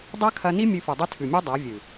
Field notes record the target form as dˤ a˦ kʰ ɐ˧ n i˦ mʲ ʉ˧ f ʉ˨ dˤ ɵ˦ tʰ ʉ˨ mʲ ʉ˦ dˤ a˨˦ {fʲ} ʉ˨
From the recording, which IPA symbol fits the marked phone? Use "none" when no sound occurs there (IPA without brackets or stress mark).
vʲ